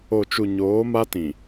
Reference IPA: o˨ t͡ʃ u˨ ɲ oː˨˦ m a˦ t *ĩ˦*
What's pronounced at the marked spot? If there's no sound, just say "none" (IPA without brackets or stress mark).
ĩ˨